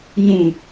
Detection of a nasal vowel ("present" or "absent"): present